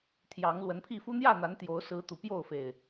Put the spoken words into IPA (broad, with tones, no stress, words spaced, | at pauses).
t̪ʰjɑ˨˦ŋ lwə˨˦npʰi˥˨ fu˦n̪jä˥˨n̪a˨˦n t̪jo˨˦ʊ̯sɹ̩˨˦ t̪u˨˩pjo˥˨ʊ̯fe˨˩ɪ̯